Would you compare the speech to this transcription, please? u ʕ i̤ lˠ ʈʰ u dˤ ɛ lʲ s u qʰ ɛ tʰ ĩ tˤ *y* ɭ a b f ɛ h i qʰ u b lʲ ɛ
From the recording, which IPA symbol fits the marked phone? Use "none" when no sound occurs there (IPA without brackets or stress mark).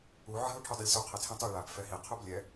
y